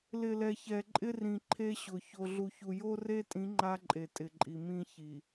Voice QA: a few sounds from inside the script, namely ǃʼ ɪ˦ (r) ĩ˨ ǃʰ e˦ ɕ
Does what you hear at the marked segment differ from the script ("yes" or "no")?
no